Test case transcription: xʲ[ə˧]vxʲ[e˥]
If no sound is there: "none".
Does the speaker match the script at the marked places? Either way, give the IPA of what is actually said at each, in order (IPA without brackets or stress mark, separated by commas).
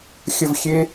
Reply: ə˥˧, e˥